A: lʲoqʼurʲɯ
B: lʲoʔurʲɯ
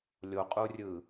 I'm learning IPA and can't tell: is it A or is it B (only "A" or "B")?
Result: A